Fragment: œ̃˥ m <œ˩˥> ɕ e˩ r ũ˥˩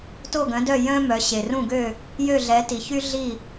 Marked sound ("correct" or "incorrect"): correct